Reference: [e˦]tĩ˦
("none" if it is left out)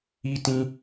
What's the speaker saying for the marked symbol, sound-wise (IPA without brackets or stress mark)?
i˦